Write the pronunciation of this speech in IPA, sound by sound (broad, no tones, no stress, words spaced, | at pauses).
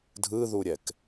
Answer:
dʱɯðuɾʲɛk